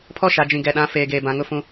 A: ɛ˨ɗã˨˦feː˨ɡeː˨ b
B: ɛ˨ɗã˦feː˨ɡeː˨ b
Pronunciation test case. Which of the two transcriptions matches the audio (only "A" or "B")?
A